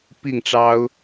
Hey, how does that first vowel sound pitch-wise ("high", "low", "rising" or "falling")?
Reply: falling